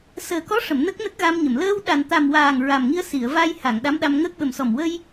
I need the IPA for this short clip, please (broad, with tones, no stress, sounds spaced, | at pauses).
s əː˨˩ k ɔ˧˥ ʂ ə˨˩˨ m n ə˦˥ k̚ n ə˦˥ k̚ ɣ a˧ m ɲ ə˨˩˨ m l əː˧ w ɗ a˨˩ n t̪ a˨˩ m w aː˨˩ ŋ ɹ a˨˩ m ŋ i˧ ə̯ s i˨˩˨ ə̯ v a˧ j h a˨˩˨ ŋ ɗ a˧˥ m ɗ a˧ m ŋ əː˦˥ k̚ ɓ ə˨˩ m s ɔ˨˩ m w ə˧ j